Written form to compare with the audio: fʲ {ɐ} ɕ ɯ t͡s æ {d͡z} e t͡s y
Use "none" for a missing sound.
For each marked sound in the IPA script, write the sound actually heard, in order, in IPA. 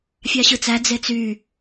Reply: ɑ, d͡z

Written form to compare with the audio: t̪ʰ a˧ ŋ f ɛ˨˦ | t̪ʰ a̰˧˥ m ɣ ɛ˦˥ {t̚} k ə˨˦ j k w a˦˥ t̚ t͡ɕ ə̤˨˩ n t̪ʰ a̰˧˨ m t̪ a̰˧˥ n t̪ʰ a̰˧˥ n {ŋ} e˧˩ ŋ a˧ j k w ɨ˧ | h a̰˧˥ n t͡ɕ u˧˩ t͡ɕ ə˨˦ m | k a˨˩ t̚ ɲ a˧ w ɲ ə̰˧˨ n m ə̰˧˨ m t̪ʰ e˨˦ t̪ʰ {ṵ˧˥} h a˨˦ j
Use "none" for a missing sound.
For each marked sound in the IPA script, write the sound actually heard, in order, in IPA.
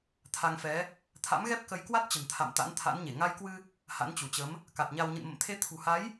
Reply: p̚, ɲ, ṳ˨˩

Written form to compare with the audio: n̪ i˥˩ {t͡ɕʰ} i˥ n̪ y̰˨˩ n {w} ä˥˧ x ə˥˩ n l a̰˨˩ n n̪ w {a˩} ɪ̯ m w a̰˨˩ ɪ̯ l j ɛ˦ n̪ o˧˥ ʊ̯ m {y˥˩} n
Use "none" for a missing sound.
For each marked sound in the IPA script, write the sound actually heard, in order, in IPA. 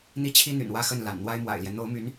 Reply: t͡ɕʰ, w, a˥, y˧˥

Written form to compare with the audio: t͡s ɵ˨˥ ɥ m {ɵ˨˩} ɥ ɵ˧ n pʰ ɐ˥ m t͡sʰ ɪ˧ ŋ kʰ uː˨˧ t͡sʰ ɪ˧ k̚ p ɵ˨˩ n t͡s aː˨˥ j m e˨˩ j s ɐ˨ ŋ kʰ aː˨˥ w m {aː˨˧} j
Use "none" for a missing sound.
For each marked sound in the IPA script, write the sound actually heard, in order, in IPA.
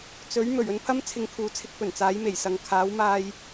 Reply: ɵ˨˩, aː˧

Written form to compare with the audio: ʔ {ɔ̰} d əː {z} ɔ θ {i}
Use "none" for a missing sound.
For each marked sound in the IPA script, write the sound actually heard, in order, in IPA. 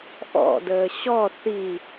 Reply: ɔ̰, ɕ, i

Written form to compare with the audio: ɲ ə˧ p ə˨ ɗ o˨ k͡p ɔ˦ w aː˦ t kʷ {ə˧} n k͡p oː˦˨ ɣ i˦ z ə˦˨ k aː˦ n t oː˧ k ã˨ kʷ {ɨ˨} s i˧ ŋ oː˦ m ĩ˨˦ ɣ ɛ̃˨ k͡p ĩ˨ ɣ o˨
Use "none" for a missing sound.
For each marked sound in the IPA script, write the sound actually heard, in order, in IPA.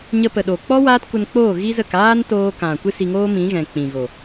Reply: ə˧, ɨ˦

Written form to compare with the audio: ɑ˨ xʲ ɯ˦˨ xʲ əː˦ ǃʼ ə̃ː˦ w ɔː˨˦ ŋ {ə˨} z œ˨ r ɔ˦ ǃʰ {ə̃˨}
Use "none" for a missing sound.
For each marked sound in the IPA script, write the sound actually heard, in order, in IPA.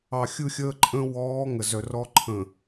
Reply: ə˨, ə̃˨

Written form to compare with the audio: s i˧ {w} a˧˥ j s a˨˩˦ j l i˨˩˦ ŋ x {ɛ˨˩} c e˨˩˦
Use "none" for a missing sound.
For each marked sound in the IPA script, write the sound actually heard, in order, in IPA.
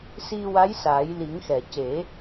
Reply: w, ɛ˨˩˨

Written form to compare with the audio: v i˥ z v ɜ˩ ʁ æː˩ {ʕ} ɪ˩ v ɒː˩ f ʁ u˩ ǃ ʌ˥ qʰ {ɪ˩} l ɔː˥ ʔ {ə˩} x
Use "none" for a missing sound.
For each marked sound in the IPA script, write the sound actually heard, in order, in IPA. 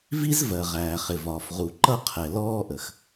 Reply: χ, ɛ˩, ə˩

